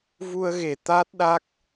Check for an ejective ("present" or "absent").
absent